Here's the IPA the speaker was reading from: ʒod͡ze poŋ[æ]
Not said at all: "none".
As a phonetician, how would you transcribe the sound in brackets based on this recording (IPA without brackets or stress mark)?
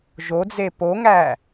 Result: æ